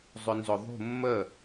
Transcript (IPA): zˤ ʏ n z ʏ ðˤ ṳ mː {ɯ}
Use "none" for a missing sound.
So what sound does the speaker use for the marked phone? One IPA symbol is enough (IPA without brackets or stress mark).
ə